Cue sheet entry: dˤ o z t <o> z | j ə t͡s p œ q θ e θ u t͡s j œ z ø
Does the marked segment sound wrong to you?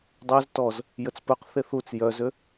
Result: yes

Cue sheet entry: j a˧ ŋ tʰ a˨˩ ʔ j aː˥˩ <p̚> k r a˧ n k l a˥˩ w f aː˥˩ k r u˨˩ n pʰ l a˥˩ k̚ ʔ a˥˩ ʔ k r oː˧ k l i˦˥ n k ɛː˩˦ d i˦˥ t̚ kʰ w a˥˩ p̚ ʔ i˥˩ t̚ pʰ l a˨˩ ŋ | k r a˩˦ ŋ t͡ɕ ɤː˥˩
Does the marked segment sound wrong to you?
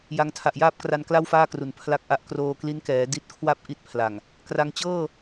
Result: no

